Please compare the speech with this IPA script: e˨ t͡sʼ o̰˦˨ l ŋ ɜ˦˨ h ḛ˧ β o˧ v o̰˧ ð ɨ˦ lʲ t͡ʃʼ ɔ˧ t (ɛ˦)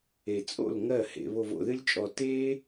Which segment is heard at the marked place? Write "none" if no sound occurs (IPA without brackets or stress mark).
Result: e˦